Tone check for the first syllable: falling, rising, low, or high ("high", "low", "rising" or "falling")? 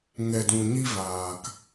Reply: low